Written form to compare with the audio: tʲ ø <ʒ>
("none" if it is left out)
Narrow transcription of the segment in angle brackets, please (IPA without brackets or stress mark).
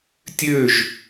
ʒ